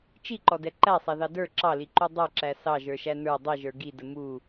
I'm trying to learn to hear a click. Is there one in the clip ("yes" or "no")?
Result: yes